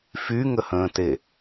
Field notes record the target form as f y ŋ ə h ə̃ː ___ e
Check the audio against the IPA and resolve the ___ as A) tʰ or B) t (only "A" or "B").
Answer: B